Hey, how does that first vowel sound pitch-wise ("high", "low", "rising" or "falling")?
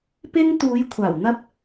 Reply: high